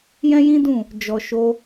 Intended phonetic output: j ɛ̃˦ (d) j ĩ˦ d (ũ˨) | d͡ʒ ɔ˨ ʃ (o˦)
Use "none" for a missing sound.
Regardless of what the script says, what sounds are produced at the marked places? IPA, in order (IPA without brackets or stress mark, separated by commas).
none, ũ˦˨, o˧